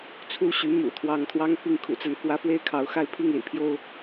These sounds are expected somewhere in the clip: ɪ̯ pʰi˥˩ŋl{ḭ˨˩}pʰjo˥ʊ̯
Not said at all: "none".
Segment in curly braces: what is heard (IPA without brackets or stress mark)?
ḭ˨˩